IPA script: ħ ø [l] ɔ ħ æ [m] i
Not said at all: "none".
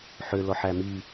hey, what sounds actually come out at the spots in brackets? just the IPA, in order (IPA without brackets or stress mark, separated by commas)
l, m